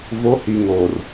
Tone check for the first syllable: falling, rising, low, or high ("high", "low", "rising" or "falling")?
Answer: rising